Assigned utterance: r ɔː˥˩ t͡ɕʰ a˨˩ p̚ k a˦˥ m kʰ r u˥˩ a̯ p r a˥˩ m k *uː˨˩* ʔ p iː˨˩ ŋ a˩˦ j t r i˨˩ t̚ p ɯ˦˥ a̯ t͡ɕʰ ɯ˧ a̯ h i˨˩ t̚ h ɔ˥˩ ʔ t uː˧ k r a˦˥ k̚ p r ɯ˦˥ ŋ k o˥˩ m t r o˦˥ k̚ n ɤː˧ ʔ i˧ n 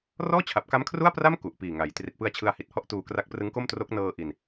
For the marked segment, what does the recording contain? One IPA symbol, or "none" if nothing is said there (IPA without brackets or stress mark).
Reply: u˨˩